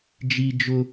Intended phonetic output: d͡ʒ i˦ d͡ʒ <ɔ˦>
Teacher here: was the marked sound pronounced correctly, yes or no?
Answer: no